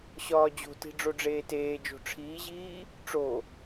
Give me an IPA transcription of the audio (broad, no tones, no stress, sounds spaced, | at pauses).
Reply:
ɕ ɒː d͡ʑ o̤ t i̤ ɖ͡ʐ o ɖ͡ʐ eː t eː d͡ʒ o̤ ʈ͡ʂʰ iː ʑ iː | ʈ͡ʂ o